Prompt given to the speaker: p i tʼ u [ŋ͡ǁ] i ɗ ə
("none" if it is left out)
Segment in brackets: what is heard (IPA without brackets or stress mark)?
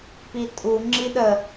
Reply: ŋ͡ǁ